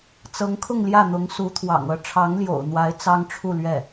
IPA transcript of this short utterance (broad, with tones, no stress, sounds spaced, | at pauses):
t͡s ɤ˧˥ ŋ kʰ ʊ˥˧ ŋ l j ä˥˩ n̪ ʊ˧˥ ŋ s u˧˥ t̪ʰ w ɑ̰˨˩ ŋ ɤ˧˥ ʈ͡ʂʰ ɑ˧˥ ŋ l j o̰˨˩ ʊ̯ n̪ w a˧˥ ɪ̯ t͡s ɑ˥ ŋ ʈ͡ʂʰ u˥˧ l ɥ ɛ˥˩